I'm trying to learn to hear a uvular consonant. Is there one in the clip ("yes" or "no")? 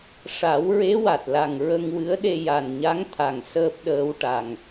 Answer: no